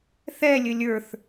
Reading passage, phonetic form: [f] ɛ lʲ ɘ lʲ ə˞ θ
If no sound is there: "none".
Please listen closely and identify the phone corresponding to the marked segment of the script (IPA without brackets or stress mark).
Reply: θ